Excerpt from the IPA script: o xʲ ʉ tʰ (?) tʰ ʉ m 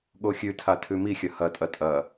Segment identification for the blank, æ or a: a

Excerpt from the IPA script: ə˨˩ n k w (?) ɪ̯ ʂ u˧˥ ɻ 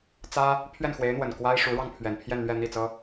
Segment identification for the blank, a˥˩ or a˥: a˥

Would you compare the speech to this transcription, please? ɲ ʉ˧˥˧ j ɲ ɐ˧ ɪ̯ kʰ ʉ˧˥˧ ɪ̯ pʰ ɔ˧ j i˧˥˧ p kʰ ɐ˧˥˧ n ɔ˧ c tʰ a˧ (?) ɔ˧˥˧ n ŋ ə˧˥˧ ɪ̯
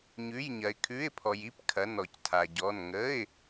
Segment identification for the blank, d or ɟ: ɟ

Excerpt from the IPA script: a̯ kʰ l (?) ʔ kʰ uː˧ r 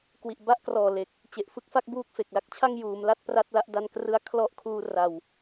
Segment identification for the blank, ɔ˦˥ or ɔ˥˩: ɔ˦˥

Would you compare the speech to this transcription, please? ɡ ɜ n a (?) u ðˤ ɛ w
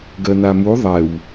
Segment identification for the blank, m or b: m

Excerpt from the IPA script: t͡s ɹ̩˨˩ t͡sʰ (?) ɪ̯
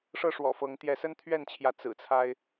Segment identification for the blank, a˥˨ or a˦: a˦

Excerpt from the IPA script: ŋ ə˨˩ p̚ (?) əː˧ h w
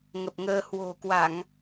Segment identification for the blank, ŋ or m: ŋ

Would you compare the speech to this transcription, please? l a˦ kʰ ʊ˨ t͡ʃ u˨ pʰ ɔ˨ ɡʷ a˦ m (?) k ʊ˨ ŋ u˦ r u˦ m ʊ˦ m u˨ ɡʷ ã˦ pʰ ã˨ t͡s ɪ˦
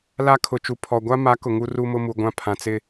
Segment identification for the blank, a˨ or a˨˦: a˨˦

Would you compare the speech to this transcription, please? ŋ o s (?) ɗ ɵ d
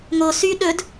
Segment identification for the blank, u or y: y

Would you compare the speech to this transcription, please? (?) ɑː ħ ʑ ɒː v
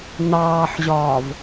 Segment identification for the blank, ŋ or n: n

